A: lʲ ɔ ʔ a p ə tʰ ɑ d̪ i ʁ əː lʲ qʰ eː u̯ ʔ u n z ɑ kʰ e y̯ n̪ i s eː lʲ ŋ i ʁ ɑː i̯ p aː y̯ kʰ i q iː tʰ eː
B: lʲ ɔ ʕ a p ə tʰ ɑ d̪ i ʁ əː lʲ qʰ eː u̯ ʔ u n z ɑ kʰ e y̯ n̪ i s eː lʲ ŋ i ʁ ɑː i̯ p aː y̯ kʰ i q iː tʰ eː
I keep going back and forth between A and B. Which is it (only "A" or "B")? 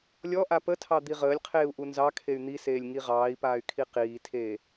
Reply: A